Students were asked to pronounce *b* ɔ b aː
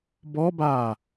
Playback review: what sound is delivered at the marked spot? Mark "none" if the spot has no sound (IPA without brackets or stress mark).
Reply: b